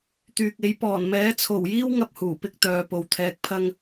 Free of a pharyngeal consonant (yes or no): yes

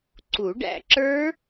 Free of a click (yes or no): no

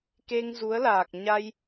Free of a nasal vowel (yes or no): yes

